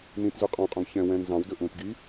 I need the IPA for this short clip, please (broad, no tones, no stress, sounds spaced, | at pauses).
n ĩ t z ʉ qʼ ɔ̃ qʼ ũ ɡ ç ɛ̃ w ɛ̃ n z ɑ̃ w d ɵ ʔ ũ t ɡ i